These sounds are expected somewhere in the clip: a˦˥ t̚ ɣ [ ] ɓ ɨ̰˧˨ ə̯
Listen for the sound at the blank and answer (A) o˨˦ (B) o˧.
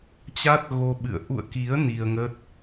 B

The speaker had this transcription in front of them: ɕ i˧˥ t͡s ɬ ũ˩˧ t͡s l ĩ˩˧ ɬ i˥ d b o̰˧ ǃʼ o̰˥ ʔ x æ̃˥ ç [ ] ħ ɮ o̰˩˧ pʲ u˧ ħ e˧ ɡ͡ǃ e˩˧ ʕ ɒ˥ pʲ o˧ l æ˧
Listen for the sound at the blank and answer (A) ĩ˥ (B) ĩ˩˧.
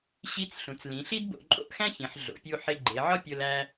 B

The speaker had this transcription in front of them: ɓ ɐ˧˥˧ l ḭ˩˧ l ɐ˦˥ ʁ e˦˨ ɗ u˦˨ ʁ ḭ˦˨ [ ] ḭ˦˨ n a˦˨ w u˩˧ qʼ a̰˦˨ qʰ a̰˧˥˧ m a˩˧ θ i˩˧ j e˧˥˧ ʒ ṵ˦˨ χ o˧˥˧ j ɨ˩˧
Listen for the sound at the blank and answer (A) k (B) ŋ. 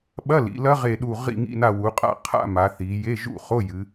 B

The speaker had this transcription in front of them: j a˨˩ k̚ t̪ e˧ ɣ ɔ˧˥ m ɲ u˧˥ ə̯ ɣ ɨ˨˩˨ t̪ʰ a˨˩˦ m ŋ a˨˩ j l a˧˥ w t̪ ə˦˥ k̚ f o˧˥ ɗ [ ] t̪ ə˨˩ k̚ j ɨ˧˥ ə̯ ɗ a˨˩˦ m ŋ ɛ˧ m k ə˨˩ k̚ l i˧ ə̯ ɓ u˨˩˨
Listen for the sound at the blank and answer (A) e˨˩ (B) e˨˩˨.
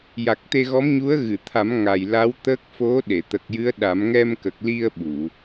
B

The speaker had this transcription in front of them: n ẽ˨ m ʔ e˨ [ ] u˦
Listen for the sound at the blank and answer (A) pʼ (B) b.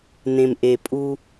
A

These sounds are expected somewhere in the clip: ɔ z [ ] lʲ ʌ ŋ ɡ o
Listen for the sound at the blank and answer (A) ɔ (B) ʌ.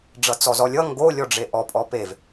A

